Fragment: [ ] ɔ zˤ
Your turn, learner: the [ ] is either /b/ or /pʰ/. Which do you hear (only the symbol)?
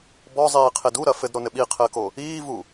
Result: b